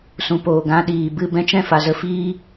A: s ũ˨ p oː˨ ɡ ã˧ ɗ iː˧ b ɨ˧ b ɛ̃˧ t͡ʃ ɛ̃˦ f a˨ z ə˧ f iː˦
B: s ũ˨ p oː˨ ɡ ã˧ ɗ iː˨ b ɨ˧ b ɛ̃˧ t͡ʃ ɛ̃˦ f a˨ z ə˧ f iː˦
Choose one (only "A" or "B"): B